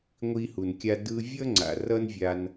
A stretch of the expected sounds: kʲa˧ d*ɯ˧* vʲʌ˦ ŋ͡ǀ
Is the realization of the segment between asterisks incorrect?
no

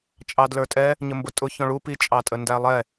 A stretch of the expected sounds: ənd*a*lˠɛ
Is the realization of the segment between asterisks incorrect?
yes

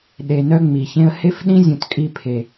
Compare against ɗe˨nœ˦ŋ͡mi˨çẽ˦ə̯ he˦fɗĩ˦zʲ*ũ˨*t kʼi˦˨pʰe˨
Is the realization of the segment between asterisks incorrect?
no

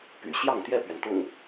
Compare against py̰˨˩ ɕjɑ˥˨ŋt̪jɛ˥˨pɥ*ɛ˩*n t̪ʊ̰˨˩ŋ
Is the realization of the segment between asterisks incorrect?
no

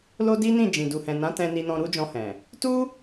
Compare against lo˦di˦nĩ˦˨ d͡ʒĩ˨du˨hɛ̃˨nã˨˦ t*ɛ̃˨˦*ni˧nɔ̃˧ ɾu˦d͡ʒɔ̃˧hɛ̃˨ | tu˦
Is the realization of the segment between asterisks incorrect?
yes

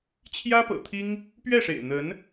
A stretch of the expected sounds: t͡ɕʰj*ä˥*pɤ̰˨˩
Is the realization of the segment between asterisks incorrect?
no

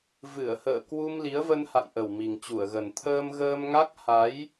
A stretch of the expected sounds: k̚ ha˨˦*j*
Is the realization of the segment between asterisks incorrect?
no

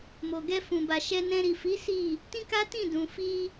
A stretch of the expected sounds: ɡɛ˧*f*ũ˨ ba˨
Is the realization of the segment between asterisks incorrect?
no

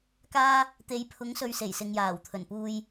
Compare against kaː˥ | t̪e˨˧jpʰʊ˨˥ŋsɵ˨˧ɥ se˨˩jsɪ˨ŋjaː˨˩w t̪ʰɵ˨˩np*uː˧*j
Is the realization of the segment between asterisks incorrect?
no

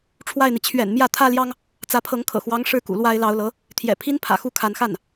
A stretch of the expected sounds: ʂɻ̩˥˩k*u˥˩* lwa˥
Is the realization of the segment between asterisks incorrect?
yes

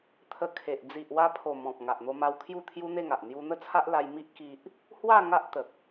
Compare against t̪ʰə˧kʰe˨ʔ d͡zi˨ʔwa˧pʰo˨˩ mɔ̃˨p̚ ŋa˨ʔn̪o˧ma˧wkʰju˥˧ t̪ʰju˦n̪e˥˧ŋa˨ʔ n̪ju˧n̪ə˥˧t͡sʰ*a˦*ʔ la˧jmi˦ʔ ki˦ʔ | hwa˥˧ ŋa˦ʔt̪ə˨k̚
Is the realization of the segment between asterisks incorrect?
no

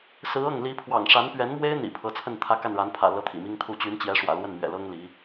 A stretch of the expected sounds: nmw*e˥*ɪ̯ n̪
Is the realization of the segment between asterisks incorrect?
no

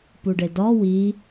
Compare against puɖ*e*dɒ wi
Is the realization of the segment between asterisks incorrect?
no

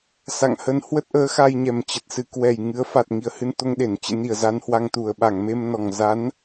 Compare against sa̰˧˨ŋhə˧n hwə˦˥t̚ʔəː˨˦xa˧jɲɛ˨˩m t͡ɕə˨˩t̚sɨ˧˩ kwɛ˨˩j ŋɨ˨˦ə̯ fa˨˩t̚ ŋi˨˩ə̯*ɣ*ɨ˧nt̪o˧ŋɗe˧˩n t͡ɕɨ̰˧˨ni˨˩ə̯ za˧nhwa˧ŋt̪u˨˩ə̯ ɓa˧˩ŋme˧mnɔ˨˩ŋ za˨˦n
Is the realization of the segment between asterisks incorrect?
yes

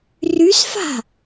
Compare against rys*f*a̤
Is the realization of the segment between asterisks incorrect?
no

